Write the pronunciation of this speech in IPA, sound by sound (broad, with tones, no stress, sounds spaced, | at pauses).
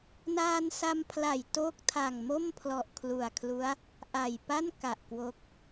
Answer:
n aː˧ n s a˧ m pʰ l a˨˩ j t o˥˩ k̚ tʰ a˨˩ ŋ m o˥˩ m pʰ l ɔ˨˩ ʔ kʰ l u˨˩ a̯ kʰ l u˦˥ a̯ | ʔ a˨˩ j p a˥˩ n k a˨˩ ʔ k w o˦˥ k̚